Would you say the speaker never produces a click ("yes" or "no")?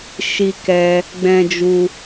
yes